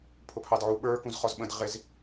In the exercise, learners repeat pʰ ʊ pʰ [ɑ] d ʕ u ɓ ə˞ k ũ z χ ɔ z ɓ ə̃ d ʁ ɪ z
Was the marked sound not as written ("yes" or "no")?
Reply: no